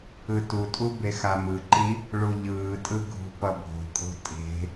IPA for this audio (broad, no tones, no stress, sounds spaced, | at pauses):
ɯ t u tʼ u b e x a m ɯ ǃ i | ɭ u ʎ ɯː tʼ ɯ ɡʱ ṳ p ʌ bʱ o̤ kʼ o̤ tʼ e̤